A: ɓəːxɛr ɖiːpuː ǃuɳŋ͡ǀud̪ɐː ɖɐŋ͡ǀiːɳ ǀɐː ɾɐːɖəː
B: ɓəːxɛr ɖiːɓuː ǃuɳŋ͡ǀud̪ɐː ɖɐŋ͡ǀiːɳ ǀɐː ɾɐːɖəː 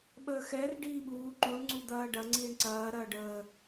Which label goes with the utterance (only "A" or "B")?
B